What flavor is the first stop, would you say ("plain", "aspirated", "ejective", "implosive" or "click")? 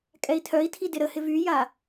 ejective